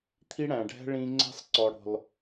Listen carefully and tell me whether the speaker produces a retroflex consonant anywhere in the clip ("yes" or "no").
yes